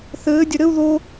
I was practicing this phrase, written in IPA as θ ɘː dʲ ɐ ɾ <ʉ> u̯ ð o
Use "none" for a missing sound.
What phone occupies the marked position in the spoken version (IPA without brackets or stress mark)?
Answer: ɘ